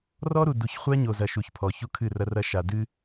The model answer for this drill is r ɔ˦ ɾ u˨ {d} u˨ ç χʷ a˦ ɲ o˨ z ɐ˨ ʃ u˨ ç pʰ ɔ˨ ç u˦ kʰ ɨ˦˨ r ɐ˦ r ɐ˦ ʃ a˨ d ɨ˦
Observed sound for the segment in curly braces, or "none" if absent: d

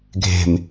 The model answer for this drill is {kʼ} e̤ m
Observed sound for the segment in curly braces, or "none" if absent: ɡʱ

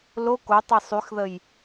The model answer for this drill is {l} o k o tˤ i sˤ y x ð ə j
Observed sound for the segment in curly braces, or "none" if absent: l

